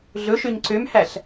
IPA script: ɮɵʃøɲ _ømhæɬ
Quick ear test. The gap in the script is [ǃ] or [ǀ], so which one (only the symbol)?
ǀ